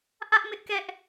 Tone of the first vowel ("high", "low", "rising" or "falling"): high